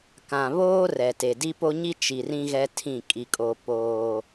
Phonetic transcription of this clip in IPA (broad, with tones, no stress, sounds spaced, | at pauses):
k ã˨ β oː˦ r ɛ˨ t e˨ d i˦ p o˦ ɲ i˦ t͡ʃ i˨ r ĩ˦ ɣ ɛ˦ tʰ ĩ˦˨ kʼ i˦ kʼ oː˦ p oː˦